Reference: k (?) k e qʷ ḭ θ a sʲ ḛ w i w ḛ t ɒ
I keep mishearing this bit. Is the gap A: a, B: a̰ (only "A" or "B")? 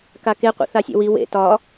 A